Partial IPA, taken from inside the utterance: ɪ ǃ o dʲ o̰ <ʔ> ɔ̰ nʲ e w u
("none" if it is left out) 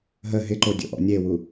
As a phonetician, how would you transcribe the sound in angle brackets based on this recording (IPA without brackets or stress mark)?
ʔ